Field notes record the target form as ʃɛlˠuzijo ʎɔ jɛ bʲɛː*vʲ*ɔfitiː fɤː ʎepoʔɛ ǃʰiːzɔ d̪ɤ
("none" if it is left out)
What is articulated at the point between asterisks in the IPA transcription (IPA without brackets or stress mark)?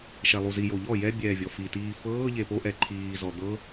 vʲ